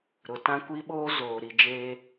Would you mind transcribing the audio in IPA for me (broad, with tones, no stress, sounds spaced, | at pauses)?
ɾ ʊ˨ t ã˦ kʷ i˦ ɓ oː˦ z oː˨ ɾ i˨ d͡ʒ eː˦